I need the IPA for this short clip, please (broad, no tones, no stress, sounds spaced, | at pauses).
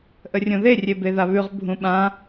ʔ ə rʲ õ ð e rʲ e b e ð a β ʉ ʁ bʱ ũ ɓ ã